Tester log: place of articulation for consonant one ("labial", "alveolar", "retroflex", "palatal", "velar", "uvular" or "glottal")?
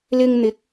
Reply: alveolar